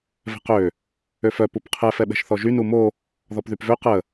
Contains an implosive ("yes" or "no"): yes